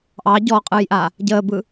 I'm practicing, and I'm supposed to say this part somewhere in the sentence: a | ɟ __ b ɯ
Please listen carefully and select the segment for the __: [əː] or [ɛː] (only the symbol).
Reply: əː